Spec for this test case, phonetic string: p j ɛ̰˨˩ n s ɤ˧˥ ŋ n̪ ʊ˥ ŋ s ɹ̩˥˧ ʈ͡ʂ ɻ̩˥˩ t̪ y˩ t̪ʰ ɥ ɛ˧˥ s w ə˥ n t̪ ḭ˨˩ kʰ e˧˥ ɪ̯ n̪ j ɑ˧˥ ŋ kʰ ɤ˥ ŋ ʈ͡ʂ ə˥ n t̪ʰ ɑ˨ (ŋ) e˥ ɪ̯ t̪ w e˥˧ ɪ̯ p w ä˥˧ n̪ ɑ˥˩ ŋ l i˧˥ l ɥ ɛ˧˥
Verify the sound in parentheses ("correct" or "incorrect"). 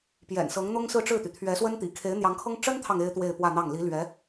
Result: correct